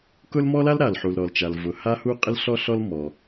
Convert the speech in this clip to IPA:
kʊ˥l mɔ˥la˥l ɾa˩lħu˩l ɾɔ˩lt͡ʃa˩lvʊ˩ ha˥hu˥ qʼɪ˥lɬɔ˥ɬɔ˥l mɔ˩

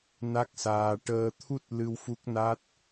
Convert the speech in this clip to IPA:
na˦˥k̚saː˧ ʈəː˧t̪ʰu˦˥t̚lɨ˧w fu˦˥k̚na˦˥t̚

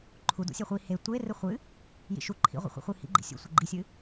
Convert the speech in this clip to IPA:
ǃʰu dṵsʲeχʷi he tʷerɨ χʷɨ | jḭʃu ǃʰḭʁʷḭχʷḭχʷɨ hḭɡ͡ǃḭ sʲṵ sʷɘɡ͡ǃisʲɨ

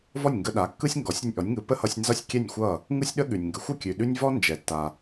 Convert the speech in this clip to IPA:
vɔ˥˩nʲŋɡə˧ɗa˩˥kːɯ˥sʲ ŋɡɔ˩˥sʲɾʲʌ˧nʲ ʔɔ˩˥nʲŋɯ˩˥ pə˥ hʌ˧sʲnzʌ˥˩sʲ kʲɛ˥˩nʲxʷʌ˥˩ | ŋɯ˥sʲɗə˥ ɠʉ˩nʲŋɡə˩˥xʷə˥˩ kʲʉ˩ɗʉ˥nʲ vɔ˥nd͡ʒɛ˩tːa˩

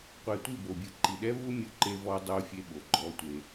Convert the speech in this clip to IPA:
qʷɛ˨tʷi˦˨bo˨bʲɯ˨ ǃi˨ɗɛ˦vu˦ mʲu˦˨ǃe˦vɔː˦ dˤoː˦fʲe˦ɓo˨ ɡ͡ǃɔː˦tʷe˦

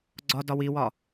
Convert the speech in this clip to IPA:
ɡ͡ǀɒ dɒwiwɒ

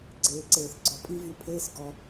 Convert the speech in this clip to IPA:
ɡ͡ǀeː˨ǀeː˨θɡ͡ǀɔ˨pʼi˧ vy˧pʰeː˦sɡɔ˧

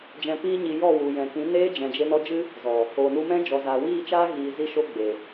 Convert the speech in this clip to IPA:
d͡ʒɛ̃˧piː˦ɲi˧ jɔ˦˨wu˨jɛ̃˨ kĩ˨˦neː˦d͡ʒɛ̃˨d͡ʒe˧ nɔ˧d͡ʒɨ˦ | zɔ˨ | o˨nu˧mɛ̃˦ d͡ʒɔ˨zaː˨wiː˦˨t͡ʃaː˦ ɣiː˨zi˧ ʃo˦ɡ͡be˨

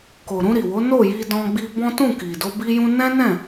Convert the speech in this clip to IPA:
ko˨ ɾũ˧ɾi˨wo˨˦ no˦˨ji˧ dɔ̃˧ ɡ͡bi˧bɔ̃˦ tũ˦˨ki˨do˧ bi˦jũ˦ nɛ̃˦nɛ̃˦˨

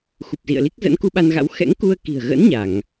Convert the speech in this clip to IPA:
xu˨˩p̚zḭ˧˨ə̯li˦˥k̚ zə̰˧˥nku˧ɓa˧nɣa̰˧˥w xɛ̰˧˥ŋku˧ə̯ki̤˨˩ə̯ɣə̰˧˥n ɲa˧˩˨ŋ

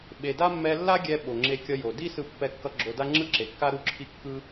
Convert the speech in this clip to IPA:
ɓe˩da˥ mːɛ˧lːa˥ɡʲɛ˧ ɓo˩ŋ͡ǁe˧kʲʌ˧jo˩ di˥sɯ˧ pːɛ˧kːʌ˧ ɡ͡ǁo˧da˥ ŋ͡ǁɯ˥ǁe˩kːa˥ ɾu˥ǁʰi˥kːɯ˥

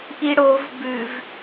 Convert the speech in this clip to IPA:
ʔiɽov bʉv

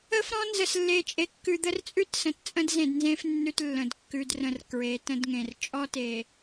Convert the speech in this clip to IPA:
ə˦fɾɔ̃˦ nzə˨slːe˨t͡ʃʼe˨ kːʉ˨d̪ə˦rt͡sʼʉ˦tsə̃˨t t͡sʼə̃˦dzẽ˨dnzẽ˦f nːʉ˦tlːə̃˨d kːʉ˨drə̃˨r kɹe˨˦tə̃˦dŋẽ˨r t͡ʃʼɔ˦te˨

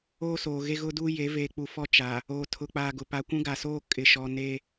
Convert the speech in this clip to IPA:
oː˦soː˨ɣe˦ ɣʊ˦duː˦je˨˦ veː˨k͡pu˨fɔ˦˨ t͡ʃa˨ | oː˨ tʰʊ˨k͡paː˨ɡʊ˨ pa˨kʷũ˦ɡa˨soː˦ kʼɪ˨ʃɔ˨ ne˦

